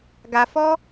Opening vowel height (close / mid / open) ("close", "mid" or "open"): open